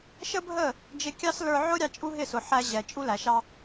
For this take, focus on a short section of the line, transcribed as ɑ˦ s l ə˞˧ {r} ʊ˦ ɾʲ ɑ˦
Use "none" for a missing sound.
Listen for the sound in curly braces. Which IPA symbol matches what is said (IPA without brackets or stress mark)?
ʕ